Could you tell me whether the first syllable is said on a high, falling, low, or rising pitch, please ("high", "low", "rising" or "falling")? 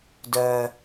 low